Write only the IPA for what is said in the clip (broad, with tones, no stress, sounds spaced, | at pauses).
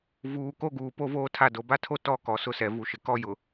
v uː˨ k o˦ ɡ uː˨ p o˦ v oː˦ tʰ a˦˨ d o˨ b a˦ tʰ o˦ t ɔ˦ k ɔ˨ s ʊ˦ s ɛ˨ v u˨ ʃ ɪ˨ k ɔ˦ j ʊ˨